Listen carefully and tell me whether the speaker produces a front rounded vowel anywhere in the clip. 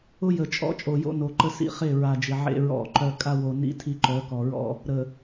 yes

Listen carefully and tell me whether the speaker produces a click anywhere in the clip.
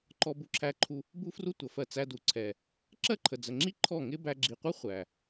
yes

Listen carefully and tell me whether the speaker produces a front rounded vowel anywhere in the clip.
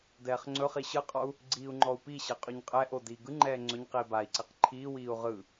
no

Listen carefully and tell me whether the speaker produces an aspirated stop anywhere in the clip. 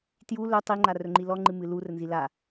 no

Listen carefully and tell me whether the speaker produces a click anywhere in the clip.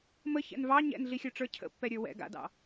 no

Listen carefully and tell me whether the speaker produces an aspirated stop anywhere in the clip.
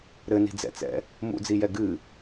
no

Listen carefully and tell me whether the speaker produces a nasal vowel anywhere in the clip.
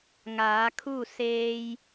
no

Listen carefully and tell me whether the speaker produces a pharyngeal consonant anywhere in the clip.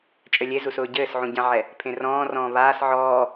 yes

